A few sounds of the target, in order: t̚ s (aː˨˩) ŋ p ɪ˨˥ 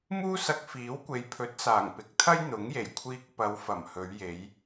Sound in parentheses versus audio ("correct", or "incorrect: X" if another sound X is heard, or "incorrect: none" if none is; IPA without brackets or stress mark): correct